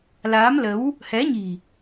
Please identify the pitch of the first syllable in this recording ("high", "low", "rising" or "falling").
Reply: rising